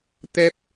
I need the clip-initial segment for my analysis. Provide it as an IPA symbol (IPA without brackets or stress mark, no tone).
t̪